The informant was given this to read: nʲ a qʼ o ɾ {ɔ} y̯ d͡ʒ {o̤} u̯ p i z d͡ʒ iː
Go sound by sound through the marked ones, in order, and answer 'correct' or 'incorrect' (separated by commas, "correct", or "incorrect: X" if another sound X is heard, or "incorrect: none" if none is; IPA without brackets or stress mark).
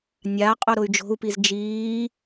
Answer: incorrect: ʊ, correct